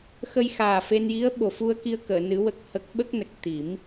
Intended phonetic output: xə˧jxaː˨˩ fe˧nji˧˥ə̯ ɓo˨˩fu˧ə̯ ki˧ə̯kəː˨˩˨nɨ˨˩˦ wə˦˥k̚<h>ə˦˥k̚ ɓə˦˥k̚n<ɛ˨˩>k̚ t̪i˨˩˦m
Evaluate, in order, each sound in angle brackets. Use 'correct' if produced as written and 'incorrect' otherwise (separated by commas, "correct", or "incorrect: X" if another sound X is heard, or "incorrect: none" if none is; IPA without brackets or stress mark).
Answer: correct, incorrect: ə˨˩